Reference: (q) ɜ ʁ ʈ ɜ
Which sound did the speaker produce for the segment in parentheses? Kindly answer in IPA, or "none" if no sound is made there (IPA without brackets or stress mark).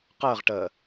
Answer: q